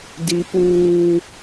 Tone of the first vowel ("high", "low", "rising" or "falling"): high